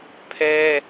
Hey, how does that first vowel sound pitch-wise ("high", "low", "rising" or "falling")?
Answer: high